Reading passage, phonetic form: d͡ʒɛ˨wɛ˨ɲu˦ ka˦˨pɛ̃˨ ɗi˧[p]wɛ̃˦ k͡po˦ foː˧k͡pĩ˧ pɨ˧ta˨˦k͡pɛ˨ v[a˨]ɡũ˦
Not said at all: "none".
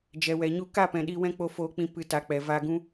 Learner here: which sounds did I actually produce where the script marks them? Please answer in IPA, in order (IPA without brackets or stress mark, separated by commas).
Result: none, a˧